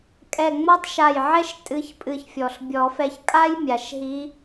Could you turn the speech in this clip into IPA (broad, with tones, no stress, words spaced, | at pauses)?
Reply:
kʼɛ˧˩ŋ͡mɔ˥tˤ ʃa˧˩jʕɛ˥ʃ tʼɨ˧˥ç pʼɨ˧˩çfʲɔ˩ɬ bʲɔ˨˩˦fɛ˧˩çkʼa˥j mʲa˩ʃɦi˧˥